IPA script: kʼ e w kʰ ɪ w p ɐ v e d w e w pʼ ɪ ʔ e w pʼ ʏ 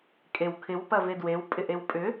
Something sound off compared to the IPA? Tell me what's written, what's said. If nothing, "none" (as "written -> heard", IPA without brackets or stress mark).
none